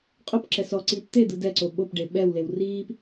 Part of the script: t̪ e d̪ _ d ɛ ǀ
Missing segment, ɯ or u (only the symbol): ɯ